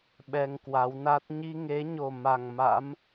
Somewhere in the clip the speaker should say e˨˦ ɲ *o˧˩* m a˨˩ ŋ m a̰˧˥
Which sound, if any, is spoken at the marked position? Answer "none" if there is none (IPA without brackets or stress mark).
o˨˩